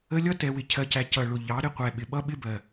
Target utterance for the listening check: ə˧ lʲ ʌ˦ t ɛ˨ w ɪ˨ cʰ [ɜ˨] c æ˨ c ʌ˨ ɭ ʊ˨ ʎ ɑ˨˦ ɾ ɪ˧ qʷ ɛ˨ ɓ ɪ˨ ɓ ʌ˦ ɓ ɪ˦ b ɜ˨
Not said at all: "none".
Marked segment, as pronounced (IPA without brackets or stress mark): ɜ˨